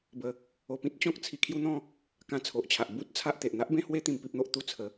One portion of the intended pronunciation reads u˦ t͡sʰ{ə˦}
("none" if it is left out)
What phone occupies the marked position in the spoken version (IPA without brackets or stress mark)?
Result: ə˨˦